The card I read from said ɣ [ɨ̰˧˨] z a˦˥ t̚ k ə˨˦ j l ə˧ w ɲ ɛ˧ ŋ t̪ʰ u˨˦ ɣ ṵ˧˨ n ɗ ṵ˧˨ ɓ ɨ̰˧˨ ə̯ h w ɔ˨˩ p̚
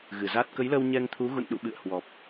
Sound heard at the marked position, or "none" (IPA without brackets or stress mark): ɨ˧˩